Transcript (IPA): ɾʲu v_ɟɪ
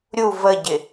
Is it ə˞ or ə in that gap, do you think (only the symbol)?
ə